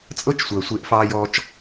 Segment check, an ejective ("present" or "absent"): present